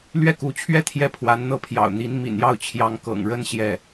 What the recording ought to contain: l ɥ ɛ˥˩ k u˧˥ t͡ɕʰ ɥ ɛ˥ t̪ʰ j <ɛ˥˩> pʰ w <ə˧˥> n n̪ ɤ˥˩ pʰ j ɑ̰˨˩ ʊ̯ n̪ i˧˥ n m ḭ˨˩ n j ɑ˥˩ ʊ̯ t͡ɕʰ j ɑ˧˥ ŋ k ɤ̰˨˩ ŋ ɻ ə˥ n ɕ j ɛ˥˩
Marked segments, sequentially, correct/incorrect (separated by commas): correct, incorrect